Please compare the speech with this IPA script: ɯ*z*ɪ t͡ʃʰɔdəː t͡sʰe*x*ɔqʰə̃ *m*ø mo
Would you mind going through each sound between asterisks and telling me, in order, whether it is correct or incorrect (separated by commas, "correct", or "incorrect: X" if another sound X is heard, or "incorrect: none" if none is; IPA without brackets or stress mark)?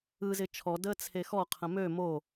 correct, correct, correct